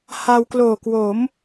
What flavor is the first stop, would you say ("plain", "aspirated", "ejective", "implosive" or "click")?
plain